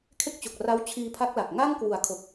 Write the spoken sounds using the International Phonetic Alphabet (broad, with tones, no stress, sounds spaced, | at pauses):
kʰ e˥˩ k̚ t͡ɕ o˨˩ k̚ r a˦˥ w t͡ɕʰ iː˧ pʰ a˦˥ k̚ l a˨˩ k̚ ŋ a˥˩ ŋ k w u˨˩ a̯ kʰ o˨˩ k̚